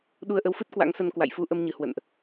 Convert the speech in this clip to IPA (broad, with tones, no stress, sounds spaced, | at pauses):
ɗ u˧ ə̯ ʔ ə˨˦ w f ɨ˦˥ t̚ k w a̰˧˥ ŋ s ə˧ n k w a̰˧˨ j f u˧ ʔ ə˧ m ɲ ɨ˧˩ h w ə̰˧˨ n ʔ